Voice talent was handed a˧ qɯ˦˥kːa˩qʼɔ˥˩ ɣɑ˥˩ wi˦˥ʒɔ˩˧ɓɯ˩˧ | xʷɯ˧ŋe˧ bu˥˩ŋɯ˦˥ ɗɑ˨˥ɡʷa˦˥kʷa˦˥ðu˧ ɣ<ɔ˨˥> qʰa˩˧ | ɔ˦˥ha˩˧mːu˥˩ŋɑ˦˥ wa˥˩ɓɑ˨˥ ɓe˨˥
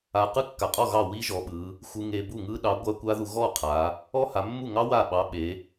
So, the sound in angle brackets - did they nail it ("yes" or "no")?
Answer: no